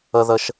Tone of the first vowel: high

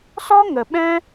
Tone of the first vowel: high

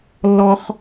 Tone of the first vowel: high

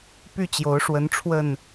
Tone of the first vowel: falling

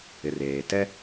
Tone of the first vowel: low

